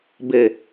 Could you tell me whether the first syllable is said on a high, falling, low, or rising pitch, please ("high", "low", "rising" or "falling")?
low